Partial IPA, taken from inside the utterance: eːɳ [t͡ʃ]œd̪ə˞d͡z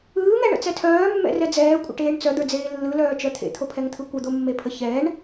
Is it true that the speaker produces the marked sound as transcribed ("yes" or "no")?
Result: no